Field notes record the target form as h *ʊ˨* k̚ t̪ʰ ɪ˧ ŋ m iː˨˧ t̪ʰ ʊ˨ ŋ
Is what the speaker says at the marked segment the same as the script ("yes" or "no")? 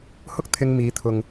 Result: no